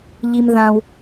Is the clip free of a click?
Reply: yes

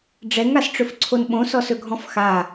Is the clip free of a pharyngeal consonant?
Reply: yes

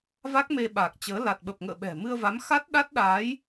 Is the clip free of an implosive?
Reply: no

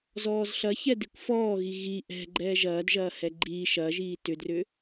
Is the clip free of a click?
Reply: no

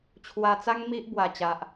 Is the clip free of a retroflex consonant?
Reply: yes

